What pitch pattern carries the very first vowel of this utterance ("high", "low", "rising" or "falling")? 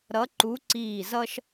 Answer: rising